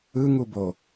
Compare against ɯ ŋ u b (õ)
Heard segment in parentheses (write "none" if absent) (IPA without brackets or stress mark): o